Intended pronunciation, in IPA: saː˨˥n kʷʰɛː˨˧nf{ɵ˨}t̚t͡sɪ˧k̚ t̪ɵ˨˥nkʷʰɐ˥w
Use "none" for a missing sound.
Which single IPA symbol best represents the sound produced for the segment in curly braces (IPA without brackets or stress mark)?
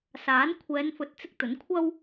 ɵ˨